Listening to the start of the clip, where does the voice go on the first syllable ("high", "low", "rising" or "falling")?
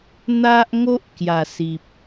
high